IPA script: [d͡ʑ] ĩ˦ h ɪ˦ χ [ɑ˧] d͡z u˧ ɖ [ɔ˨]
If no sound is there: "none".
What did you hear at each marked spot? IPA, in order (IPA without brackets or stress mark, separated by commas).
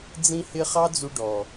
d͡z, ɑ˦, ɔ˨